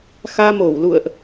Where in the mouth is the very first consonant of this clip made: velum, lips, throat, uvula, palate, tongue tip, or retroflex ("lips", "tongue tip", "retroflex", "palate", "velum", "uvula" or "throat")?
velum